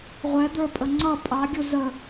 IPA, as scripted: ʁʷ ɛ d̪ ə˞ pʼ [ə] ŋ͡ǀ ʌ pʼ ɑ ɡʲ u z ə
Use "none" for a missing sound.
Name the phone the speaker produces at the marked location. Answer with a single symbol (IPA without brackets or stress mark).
ə